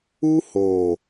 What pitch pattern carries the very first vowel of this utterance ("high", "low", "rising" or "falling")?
high